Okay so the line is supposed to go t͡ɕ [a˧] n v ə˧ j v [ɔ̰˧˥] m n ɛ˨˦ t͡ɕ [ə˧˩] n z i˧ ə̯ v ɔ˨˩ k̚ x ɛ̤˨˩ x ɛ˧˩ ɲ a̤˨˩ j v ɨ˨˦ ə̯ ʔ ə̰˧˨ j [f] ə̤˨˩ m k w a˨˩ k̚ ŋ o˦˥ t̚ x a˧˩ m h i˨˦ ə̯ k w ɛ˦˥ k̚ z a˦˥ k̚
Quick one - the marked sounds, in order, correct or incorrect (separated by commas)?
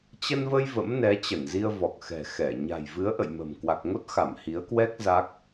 incorrect, incorrect, correct, incorrect